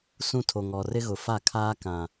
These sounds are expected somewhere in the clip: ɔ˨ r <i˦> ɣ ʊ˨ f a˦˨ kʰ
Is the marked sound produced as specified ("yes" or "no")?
no